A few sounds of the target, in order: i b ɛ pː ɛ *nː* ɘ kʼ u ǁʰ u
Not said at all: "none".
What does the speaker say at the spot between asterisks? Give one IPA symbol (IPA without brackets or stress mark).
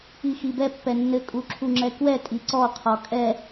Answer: nː